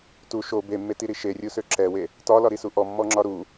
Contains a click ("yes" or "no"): yes